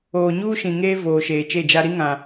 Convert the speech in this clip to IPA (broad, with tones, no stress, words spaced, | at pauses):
oː˨ɲuː˦ʃĩ˨ŋeː˦ voː˨ʃeː˨t͡ʃe˦˨d͡ʒa˦ ɾi˦ŋã˨